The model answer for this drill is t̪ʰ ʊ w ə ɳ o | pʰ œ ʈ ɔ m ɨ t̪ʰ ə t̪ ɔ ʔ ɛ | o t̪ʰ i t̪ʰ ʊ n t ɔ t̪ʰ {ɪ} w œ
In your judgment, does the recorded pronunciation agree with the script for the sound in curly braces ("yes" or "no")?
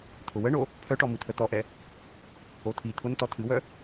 no